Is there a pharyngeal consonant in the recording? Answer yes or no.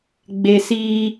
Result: no